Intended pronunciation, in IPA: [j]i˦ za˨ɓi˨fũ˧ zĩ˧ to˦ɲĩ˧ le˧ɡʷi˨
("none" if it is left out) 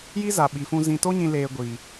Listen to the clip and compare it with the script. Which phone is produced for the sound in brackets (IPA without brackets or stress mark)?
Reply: j